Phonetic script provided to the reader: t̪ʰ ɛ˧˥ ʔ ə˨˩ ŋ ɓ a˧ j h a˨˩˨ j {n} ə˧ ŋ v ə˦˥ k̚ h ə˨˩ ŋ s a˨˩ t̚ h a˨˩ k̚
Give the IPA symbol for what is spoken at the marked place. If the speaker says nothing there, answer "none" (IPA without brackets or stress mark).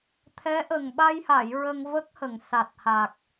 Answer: ɹ